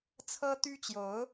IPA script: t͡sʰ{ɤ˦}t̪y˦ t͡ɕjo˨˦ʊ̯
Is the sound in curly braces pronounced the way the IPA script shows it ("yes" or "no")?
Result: yes